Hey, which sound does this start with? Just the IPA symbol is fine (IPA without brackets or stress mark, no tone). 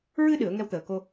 ɹ